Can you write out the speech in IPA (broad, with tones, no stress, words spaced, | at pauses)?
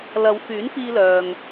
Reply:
lɐ˨˧wfyː˨˥nfiː˧lœː˨ŋ